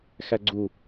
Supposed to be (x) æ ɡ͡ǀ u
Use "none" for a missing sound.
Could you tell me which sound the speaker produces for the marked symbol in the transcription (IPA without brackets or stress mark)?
x